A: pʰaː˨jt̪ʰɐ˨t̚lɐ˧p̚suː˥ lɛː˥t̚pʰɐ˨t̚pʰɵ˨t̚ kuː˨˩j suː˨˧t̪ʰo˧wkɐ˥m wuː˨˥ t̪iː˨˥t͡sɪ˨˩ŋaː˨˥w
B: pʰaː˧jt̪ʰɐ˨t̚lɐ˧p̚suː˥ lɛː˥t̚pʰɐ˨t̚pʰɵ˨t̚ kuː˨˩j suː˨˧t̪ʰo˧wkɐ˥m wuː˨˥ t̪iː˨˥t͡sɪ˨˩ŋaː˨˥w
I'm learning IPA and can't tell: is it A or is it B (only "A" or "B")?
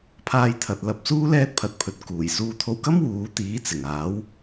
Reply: B